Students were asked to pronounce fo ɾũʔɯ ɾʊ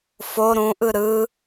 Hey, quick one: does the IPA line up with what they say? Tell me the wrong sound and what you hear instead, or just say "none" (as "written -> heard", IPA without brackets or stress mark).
ʊ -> ɯ